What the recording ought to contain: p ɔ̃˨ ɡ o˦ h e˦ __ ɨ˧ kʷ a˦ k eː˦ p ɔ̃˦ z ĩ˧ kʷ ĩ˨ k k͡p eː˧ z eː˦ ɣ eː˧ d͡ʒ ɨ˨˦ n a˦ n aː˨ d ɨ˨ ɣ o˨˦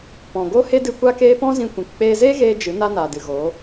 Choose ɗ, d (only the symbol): d